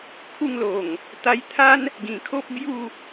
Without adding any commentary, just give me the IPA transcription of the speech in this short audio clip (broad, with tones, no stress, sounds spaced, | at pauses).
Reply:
kʰ u˥˧ ŋ l o˨˩ ŋ | t̪ a˧ j t̪ʰ a˦ n | ɡ ĩ˨˩ kʰ o˦ p̚ b j u˥˧